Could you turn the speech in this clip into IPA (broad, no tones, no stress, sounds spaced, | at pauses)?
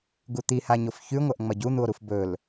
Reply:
ɡ u t̪ i h a ɲ o f ç ʉ ŋʷ ɐ ʔ ŋ͡m ɐ ɟ u n̪ u o̯ ɾ u f b ɵ l